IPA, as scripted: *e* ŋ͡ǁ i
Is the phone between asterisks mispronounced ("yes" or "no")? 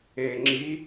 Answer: no